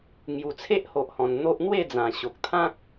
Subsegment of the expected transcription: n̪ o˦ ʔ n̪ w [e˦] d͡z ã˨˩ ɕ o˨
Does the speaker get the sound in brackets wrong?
yes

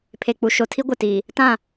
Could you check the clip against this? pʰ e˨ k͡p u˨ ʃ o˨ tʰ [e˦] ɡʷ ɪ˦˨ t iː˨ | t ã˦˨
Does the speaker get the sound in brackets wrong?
yes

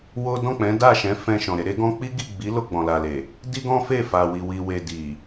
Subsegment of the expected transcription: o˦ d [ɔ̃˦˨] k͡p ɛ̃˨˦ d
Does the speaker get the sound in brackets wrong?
no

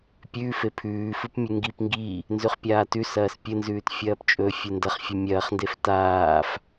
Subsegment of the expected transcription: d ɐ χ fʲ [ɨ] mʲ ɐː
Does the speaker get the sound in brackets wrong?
no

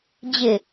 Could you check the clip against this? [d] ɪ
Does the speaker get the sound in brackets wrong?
yes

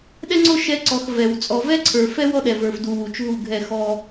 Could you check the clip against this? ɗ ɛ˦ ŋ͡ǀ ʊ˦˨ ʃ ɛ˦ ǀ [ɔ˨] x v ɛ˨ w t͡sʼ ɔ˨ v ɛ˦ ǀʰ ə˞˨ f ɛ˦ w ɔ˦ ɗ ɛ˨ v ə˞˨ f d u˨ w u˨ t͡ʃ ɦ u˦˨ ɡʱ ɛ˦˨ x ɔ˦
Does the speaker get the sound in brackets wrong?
no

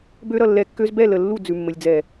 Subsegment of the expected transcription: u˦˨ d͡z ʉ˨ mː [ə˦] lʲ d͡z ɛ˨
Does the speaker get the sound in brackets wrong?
yes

